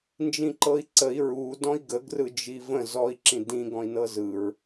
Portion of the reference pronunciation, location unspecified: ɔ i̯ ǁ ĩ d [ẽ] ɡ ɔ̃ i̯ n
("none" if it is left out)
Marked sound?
ĩ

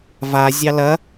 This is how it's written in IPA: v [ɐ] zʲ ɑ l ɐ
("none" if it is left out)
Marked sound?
a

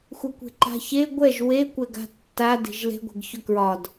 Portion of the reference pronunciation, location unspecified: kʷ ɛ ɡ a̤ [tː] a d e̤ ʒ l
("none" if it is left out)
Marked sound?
tː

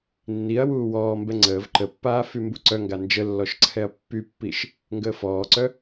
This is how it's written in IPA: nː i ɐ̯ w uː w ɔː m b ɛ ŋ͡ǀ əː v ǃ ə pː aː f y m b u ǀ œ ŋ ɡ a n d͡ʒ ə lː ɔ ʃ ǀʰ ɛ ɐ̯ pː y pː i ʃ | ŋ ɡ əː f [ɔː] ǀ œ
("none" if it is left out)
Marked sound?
ɔː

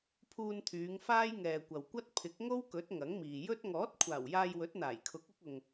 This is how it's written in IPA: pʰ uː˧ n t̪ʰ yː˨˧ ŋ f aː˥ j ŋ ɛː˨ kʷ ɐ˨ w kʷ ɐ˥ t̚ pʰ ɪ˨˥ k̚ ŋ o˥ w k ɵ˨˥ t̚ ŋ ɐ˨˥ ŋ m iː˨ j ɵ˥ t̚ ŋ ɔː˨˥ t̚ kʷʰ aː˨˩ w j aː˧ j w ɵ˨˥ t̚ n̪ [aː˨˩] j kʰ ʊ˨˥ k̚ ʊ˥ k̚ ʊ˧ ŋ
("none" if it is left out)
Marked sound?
aː˨˩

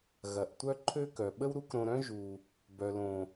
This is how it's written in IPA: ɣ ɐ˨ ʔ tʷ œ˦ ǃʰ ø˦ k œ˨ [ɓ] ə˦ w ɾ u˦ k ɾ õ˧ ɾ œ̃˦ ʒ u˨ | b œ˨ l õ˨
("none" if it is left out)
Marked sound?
ɓ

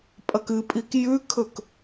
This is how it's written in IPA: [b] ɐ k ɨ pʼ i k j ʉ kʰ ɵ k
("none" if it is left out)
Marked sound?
pʼ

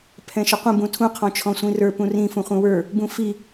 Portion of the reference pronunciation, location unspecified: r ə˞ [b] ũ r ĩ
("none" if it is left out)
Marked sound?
p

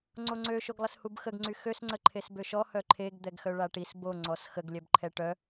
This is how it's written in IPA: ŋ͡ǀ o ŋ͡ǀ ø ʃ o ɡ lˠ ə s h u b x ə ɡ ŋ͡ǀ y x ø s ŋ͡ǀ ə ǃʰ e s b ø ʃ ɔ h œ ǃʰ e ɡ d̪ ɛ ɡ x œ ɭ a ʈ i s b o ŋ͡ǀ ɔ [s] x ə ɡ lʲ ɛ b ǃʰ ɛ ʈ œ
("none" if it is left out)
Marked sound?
s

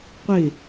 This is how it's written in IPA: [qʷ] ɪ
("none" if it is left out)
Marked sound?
qʷ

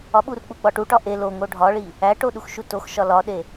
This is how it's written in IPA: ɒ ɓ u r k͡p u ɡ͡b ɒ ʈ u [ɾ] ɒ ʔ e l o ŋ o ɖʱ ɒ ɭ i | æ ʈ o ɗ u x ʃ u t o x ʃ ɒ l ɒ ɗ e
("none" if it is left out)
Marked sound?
ʈ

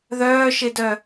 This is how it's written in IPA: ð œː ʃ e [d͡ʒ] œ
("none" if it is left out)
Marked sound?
d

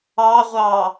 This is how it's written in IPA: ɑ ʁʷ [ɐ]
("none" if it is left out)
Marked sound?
ɑ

